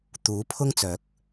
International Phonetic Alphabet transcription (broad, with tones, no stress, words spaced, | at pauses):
t̪uː˨˥ pʰʊ˥ŋt͡sœː˨˥k̚